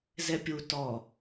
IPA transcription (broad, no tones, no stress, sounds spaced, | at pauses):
z ɛ pʲ u t ɔ